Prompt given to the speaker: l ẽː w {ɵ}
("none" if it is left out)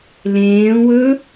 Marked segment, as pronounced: ɵ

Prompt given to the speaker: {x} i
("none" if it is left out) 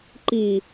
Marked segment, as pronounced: ǃ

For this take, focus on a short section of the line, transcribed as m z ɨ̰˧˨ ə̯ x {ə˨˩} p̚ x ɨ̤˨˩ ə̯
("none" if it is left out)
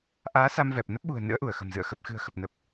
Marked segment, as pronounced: ə˨˩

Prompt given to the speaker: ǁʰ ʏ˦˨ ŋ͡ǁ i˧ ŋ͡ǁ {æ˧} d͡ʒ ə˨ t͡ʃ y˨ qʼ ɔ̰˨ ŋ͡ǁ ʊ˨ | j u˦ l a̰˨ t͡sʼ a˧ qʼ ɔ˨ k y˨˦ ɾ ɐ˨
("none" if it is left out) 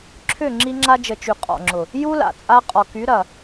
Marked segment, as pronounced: a˧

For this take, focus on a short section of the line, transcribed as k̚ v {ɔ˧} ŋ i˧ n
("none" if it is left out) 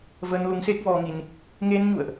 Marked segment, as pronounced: ɔ˧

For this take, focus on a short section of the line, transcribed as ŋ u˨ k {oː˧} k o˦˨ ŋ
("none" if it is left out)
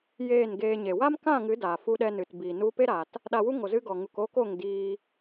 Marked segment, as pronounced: oː˧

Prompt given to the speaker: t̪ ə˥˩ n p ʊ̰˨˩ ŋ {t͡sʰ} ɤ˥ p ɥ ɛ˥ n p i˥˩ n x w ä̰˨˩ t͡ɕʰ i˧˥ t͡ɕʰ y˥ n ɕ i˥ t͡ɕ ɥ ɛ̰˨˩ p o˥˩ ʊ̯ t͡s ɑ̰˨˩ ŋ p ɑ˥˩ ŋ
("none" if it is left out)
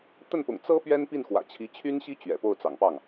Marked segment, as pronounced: t͡s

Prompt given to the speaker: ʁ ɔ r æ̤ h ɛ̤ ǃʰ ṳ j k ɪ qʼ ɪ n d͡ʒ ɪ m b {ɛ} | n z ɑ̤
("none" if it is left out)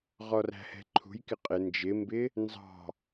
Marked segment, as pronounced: ɪ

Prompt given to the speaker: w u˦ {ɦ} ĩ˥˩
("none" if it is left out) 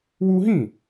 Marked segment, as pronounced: ɦ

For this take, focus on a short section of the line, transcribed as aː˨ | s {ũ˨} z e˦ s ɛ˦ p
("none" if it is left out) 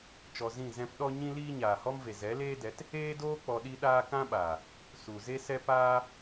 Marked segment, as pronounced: u˨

